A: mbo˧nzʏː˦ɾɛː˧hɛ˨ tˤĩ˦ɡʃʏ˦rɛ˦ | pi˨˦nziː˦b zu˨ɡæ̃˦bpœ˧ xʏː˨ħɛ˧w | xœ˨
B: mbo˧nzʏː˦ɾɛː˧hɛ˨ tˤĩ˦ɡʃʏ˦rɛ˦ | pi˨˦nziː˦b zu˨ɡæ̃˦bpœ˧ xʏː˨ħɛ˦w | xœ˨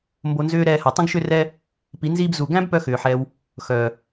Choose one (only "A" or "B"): A